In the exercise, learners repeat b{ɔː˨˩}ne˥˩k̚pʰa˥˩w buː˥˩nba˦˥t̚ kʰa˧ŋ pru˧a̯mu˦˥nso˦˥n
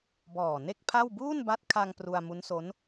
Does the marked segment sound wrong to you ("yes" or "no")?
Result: no